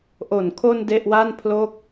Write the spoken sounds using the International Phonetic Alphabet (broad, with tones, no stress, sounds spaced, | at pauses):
ʔ o˨˩ n kʰ o˧ n d e˥˩ ʔ w a˥˩ n pʰ l o˥˩ k̚